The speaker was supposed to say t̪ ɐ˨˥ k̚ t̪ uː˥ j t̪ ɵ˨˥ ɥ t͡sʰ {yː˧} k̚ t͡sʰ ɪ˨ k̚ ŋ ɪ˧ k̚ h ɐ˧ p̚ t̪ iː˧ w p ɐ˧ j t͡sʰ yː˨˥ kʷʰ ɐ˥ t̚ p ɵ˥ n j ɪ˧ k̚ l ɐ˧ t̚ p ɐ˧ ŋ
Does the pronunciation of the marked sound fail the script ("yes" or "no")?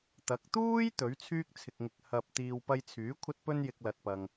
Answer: yes